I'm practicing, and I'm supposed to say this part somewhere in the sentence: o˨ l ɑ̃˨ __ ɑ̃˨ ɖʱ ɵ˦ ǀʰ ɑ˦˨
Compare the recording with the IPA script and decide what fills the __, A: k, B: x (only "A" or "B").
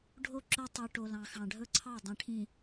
B